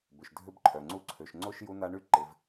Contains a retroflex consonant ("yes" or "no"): yes